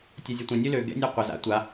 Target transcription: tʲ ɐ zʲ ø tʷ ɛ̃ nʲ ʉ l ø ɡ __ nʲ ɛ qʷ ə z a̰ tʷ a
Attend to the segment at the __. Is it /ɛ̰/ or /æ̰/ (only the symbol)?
ɛ̰